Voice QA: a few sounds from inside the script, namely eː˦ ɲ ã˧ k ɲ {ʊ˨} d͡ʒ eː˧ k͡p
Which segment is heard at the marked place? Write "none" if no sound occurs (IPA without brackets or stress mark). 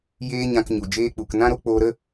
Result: u˨